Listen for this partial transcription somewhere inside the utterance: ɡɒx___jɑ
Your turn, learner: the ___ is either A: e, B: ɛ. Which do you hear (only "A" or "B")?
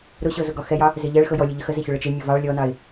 B